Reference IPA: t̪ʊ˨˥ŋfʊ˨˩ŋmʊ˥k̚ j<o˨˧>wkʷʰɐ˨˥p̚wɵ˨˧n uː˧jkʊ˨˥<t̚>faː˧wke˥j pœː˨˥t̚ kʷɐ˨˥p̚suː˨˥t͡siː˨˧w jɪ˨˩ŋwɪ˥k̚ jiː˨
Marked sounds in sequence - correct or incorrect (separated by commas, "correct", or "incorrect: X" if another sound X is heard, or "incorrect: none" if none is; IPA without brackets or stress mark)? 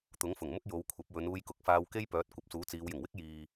correct, incorrect: k̚